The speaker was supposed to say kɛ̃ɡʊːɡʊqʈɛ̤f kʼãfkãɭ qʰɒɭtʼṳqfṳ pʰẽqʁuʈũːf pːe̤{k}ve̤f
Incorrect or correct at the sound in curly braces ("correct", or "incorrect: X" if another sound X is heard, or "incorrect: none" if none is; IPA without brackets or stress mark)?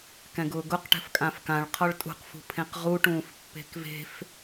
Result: correct